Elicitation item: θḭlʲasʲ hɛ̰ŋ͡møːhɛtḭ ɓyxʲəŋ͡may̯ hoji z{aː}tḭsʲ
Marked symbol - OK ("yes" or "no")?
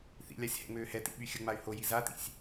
no